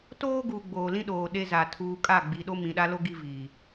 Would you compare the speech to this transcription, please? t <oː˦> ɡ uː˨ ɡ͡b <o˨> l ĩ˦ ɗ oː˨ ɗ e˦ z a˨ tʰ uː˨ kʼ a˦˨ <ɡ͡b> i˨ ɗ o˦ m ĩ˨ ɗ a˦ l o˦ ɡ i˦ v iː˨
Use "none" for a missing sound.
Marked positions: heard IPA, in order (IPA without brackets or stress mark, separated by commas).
oː˦, oː˨, ɡ͡b